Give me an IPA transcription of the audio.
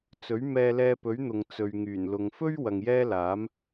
t͡s ɵ˨˥ ɥ m ɛː˧ l ɛː˧ p ɵ˨˥ ɥ n̪ ʊ˨ ŋ t͡s ɵ˨ ɥ ŋ yː˨˩ n l ʊ˨ ŋ f ɵ˥ ɥ w ɐ˨ ŋ j ɛː˥ l aː˨˥ m

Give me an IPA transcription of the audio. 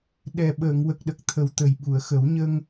ɗ ɛ˨˩ ɓ əː˨˩˨ ŋ w ə˨˩ k̚ ɗ ə˨˩ k̚ t̪ʰ ə˨˩ w t̪ ə˨˩ j ɓ u˨˩˨ ə̯ x ə˨˩˦ w ɲ ə˧ ŋ

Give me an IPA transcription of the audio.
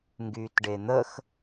ŋ ɡ yː t ɖ e n̪ ə x

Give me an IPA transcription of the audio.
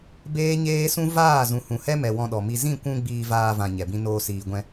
b eː˦ ɲ eː˦ s ũ˦ v aː˦˨ z ũ˨ h ũ˨ h ɛ˦ m ɛ˨ w ɔ̃˧ ɗ ɔ˨ m i˧ z ĩ˦˨ kʷ ũ˧ ɡ͡b iː˧ v aː˧ v ã˨ ɲ ɛ˨ b ĩ˦ n oː˧ s iː˨ ɡʷ ɛ̃˧

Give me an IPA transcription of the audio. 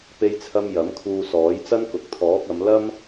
p e˥ j t͡sʰ ɐ˥ m j ɐ˨˥ m kʰ uː˧ s ɔː˨˥ j t͡s ɐ˥ n k ʊ˨ k̚ t̪ʰ ɔː˨˥ k̚ ɐ˨˧ m l ɐ˥ m

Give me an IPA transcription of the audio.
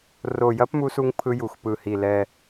r o˨˩ j ɐ˦˥ p m u˧ s u˧ ŋ pʰ ɯ˧ j u˨˩ x p ɯ˨˩ h i˨˩ l ɛ˨˩

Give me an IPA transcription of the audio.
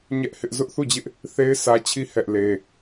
ɲ ɛ˦ ʔ h ɪ˦ ʔ z ʊ˦ ʔ θ u˦˨ d͡ʑ ɪ˦ ʔ | θ e˦ ɪ̯ sʰ ä˦ t͡ɕʰ i˦ h ɛ˦ ʔ l e˦

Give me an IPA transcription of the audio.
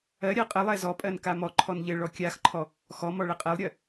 ɜ ɾʲ ɜ qʼ ɘ lˠ ɛ z ɔ pʼ ɜ n k a m ɔ ǃʰ ɔ n ʎ ɘ ɭ ɔ kʲ a x ǃʰ ɔ | x ɔ m ɔ ɭ ɘ qʼ ɛ lˠ ɾʲ ɜ

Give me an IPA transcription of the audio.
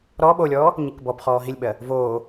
ɾ ɔ ɓ o lʲ ɔː | ɲ i k b ɔ b χ ɔː ɦ i lʲ ɓ ɜ | v oː

